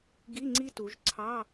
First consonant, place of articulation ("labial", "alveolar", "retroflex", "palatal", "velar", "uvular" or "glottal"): velar